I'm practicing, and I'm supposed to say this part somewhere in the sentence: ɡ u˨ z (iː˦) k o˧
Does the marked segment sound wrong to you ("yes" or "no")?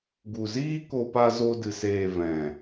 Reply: no